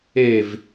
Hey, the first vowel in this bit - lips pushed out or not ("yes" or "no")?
no